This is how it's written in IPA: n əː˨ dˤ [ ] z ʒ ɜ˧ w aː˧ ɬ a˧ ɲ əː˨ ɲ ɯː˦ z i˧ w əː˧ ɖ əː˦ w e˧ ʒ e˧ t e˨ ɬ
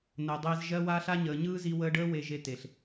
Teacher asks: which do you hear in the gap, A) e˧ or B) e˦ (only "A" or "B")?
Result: A